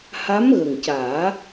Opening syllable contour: rising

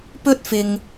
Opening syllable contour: high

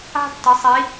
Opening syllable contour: high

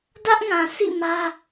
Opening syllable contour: high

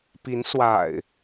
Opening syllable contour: rising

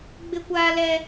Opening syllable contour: high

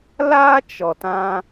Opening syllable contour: high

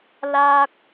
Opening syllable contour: high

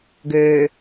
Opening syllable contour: low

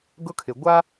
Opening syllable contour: high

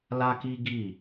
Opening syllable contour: high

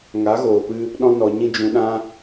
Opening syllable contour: rising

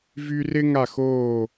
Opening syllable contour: high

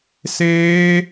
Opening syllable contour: high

